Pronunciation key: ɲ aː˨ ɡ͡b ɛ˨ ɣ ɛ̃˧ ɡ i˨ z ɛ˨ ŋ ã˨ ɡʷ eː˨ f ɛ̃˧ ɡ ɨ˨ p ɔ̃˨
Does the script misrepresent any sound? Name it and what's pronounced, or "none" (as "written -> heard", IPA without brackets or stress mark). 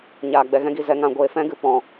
none